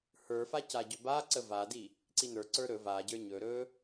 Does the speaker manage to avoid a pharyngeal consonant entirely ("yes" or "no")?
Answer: yes